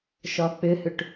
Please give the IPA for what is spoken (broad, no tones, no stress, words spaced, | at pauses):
ʃɒk͡pʏhʏʈ